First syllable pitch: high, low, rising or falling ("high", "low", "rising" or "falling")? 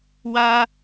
high